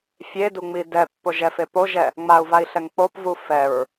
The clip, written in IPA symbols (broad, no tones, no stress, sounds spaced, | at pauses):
fʲ e d u ŋ͡m i d ɛ pː o ʒ ɛ f e p o ʒ ɛ | ŋ͡m a u̯ v a i̯ ɬ ɛ ŋ k͡p o p v u f ɛ ɹ